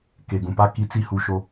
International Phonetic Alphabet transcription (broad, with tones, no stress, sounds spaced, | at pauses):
k e˨ ɡ ũ˨ p a˦ k i˨˦ t͡s i˨ h u˨ ʃ o˦